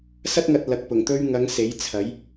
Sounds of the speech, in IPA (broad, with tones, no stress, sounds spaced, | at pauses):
s ɐ˥ t̚ ŋ ɐ˨ t̚ l ɐ˨ k̚ p ʊ˨˩ ŋ t̪ ɵ˥ ɥ ŋ ɐ˨˧ ŋ s e˨˥ j t͡sʰ ɐ˨˥ j